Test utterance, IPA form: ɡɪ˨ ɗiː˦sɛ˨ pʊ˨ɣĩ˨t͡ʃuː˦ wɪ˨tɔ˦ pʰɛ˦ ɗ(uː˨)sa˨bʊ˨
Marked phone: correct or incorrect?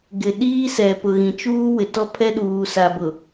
correct